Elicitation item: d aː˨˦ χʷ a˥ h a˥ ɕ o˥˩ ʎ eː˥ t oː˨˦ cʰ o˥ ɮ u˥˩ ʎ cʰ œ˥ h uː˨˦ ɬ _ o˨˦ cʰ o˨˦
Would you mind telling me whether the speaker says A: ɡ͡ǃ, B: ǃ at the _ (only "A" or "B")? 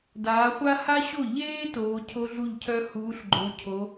A